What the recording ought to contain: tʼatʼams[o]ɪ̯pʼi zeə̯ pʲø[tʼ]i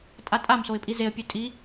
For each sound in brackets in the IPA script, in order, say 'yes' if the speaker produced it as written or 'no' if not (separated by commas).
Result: yes, yes